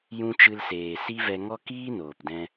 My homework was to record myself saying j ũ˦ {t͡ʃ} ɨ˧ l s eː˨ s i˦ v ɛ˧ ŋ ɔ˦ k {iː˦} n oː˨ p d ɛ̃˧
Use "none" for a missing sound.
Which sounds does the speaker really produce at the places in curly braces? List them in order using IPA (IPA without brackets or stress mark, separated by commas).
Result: t͡ʃ, iː˦